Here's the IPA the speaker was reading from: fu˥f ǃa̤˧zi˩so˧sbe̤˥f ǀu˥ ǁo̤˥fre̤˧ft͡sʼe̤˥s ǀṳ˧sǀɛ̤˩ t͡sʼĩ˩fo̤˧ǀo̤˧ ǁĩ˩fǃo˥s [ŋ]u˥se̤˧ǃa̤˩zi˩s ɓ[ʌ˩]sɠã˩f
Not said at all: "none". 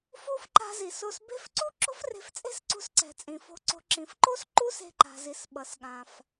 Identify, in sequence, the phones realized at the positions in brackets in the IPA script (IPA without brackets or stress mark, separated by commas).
ǃ, ʌ˩